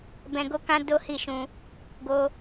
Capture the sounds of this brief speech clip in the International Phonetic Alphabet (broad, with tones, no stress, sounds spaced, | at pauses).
b ɛ̃˧ ɡ o˦ k ã˦ d o˦ h i˦˨ ʃ ũ˧ | ɡ o˦